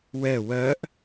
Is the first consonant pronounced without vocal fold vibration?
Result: no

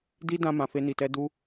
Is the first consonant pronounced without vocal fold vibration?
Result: no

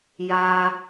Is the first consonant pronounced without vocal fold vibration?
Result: no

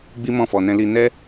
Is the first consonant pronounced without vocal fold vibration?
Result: no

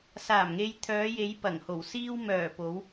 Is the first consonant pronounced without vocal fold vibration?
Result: yes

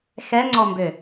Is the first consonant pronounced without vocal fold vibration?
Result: yes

